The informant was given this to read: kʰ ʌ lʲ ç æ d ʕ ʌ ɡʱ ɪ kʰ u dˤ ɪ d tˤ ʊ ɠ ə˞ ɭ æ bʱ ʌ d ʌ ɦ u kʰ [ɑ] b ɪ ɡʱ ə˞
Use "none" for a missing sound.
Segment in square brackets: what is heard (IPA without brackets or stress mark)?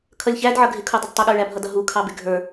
ɑ